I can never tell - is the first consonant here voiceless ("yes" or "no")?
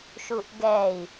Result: yes